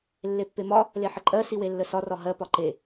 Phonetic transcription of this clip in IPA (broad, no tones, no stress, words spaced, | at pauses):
lːepːemɒ | leħəǃʼɜ siwelːəsɒ rɒɦɜ pɒǃe